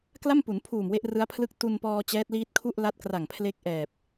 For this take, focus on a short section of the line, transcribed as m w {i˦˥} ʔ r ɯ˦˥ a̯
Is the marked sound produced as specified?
no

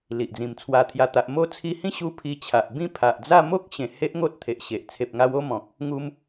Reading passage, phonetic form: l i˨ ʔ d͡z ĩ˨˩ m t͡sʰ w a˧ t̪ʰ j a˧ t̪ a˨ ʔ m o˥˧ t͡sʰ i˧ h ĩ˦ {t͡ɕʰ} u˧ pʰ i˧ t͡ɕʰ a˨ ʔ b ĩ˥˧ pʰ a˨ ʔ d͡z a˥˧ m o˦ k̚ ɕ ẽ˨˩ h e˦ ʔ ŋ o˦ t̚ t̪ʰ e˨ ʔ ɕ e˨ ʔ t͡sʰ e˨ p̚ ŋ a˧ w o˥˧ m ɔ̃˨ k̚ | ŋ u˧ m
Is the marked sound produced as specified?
no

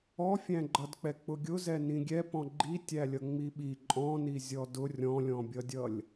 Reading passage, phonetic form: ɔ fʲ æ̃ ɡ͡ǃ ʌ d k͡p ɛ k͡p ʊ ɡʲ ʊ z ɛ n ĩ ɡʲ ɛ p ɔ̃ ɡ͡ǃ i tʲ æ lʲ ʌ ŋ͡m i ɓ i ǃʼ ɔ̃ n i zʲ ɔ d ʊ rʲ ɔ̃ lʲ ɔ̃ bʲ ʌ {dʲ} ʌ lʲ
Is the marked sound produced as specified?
yes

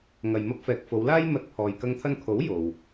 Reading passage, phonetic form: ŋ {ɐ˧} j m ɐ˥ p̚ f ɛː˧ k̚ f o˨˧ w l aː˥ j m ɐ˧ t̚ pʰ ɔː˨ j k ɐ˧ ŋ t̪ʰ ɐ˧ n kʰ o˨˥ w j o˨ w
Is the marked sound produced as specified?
yes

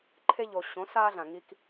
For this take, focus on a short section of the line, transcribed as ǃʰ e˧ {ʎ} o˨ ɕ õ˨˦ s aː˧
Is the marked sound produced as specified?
yes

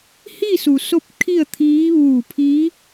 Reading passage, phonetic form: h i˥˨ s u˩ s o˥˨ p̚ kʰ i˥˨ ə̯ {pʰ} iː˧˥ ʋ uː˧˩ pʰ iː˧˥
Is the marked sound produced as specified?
no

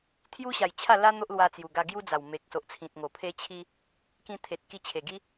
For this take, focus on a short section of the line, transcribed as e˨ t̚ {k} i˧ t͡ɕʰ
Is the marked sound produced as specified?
yes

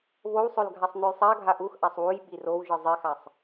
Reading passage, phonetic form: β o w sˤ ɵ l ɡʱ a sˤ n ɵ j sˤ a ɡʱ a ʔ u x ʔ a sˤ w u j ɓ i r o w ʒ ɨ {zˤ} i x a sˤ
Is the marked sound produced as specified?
yes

